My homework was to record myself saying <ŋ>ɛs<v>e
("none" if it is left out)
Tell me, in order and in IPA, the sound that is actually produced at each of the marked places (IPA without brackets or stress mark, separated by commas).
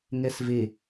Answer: ŋ, v